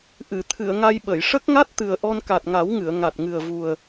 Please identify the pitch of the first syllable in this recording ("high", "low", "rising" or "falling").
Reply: low